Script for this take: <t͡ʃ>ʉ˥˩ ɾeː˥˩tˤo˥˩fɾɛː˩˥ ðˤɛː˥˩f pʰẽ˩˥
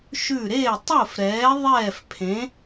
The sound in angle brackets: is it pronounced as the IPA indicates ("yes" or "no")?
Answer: no